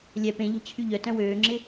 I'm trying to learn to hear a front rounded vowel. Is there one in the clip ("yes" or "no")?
yes